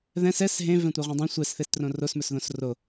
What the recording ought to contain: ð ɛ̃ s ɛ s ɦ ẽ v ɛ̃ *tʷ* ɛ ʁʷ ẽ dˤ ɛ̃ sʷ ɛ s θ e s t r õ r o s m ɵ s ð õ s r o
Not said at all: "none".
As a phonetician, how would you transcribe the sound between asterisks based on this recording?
tʷ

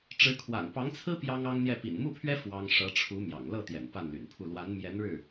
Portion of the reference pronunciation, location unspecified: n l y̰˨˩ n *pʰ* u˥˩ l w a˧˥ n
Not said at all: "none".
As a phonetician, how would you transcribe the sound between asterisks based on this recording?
pʰ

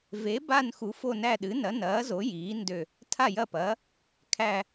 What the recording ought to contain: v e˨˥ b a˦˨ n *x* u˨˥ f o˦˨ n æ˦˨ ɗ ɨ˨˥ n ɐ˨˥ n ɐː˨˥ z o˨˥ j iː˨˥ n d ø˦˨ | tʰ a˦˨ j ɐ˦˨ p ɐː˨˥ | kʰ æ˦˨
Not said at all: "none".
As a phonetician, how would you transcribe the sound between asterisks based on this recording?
x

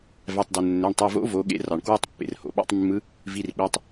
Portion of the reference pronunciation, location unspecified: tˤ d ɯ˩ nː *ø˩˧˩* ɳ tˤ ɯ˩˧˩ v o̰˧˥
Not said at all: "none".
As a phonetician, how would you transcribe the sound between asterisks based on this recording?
ø˩˧˩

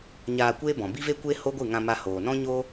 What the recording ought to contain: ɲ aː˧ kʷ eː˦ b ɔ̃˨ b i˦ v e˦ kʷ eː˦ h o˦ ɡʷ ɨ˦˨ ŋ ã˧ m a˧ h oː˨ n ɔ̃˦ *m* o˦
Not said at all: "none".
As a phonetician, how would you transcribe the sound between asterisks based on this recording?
ɲ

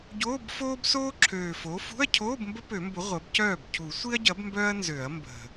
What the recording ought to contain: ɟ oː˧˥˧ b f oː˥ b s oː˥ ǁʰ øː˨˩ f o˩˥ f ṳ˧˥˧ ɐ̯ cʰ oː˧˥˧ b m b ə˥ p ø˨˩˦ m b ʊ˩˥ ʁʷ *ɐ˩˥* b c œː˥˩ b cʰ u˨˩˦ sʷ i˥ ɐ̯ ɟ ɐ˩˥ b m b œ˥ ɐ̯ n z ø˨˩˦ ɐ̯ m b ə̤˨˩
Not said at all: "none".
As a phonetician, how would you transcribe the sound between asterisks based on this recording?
ɐ˩˥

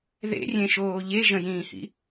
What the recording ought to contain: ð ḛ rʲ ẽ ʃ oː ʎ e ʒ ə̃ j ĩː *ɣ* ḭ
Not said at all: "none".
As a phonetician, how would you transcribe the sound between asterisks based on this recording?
h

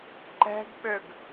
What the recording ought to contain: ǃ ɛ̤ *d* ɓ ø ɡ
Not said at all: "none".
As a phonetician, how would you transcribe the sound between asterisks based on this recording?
ɡ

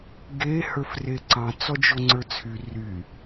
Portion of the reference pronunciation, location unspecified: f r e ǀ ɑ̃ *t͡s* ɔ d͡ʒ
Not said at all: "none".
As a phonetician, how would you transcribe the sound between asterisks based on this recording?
t͡s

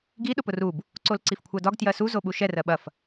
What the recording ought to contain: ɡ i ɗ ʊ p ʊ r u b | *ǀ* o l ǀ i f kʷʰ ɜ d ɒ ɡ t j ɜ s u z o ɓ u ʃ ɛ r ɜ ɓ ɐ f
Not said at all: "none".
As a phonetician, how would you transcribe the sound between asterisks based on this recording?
ǀ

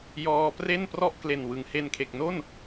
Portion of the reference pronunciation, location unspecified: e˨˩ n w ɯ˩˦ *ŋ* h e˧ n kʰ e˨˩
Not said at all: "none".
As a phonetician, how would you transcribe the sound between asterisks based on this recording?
ŋ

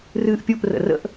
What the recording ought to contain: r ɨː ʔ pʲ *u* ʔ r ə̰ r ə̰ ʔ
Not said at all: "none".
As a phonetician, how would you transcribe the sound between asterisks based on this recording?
u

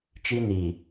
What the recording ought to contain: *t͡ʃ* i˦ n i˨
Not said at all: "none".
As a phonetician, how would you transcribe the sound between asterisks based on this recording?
t͡ʃ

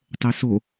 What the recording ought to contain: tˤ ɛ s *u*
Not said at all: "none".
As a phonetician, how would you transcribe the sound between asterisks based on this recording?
o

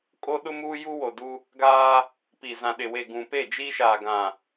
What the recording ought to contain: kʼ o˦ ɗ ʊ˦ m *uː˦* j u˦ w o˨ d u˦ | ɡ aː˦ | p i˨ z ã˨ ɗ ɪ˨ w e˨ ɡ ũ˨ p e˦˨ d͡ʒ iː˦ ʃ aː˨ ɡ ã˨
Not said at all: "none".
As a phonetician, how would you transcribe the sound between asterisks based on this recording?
uː˦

